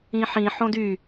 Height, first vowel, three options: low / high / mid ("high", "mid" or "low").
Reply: high